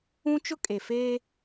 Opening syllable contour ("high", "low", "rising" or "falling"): high